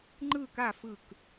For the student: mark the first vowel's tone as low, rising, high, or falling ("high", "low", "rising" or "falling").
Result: falling